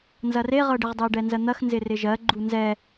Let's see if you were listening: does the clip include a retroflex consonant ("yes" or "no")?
yes